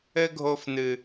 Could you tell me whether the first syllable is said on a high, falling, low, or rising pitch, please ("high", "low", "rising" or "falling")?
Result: high